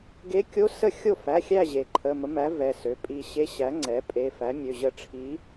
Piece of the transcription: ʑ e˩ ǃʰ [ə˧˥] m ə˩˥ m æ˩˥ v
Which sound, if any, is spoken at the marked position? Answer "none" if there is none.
ə˩˧˩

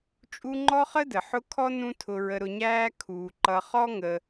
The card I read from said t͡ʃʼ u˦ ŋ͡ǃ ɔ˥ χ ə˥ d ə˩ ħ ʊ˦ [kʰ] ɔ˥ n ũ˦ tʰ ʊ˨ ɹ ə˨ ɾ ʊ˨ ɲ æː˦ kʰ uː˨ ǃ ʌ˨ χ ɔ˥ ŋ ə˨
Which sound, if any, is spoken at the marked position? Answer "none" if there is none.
kʰ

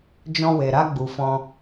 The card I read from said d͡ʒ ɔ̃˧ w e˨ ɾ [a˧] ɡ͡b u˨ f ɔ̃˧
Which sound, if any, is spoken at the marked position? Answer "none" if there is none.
a˧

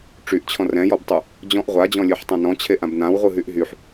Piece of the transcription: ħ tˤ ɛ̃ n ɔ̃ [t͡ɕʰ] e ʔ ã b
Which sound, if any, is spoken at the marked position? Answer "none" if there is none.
t͡ɕʰ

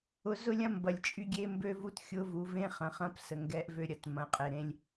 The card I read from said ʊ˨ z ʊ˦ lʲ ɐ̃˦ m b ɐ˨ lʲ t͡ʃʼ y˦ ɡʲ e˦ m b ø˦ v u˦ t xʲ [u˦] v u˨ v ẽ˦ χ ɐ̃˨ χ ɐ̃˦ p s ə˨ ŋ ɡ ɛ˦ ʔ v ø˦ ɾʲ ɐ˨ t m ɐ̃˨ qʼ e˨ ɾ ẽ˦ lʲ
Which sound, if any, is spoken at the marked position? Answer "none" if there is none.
ʊ˦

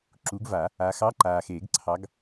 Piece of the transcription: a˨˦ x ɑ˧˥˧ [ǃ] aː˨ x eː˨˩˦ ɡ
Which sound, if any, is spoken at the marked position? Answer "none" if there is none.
ǃ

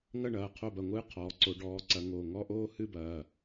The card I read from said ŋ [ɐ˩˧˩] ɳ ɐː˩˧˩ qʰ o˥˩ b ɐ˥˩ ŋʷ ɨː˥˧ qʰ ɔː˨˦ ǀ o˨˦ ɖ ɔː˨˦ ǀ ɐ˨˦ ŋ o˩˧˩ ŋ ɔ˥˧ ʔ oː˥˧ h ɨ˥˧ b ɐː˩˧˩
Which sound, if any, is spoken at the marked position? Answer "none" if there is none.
ɐ˥˧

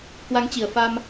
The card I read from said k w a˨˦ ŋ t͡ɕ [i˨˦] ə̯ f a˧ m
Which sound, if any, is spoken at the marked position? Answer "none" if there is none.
i˨˩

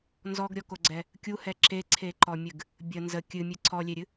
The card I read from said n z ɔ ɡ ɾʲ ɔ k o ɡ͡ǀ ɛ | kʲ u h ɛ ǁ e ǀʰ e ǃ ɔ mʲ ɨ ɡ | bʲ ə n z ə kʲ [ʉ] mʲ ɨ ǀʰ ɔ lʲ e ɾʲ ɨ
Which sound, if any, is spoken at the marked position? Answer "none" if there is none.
ɨ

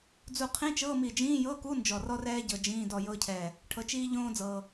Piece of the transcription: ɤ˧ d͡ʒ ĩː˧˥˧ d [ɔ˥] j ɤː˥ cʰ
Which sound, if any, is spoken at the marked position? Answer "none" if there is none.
ɔ˧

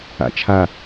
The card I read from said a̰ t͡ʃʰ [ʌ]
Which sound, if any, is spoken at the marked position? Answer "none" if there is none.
a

